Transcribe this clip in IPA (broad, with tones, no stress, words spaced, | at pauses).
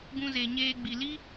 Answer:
ɡũ˧ze˨ɲeː˧ ɡ͡bi˨li˦